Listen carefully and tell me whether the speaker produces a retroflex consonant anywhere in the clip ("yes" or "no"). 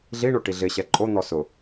yes